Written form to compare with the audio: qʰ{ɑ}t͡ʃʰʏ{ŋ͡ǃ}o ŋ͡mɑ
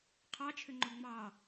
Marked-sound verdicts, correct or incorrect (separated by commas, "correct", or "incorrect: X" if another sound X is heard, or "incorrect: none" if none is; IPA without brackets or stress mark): correct, correct